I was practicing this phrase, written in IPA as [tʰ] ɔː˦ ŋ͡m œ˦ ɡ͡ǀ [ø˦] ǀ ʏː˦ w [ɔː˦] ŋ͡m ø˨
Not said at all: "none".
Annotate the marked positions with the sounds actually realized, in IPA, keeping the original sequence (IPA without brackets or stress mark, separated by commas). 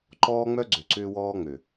ǃ, ø˨, ɔː˦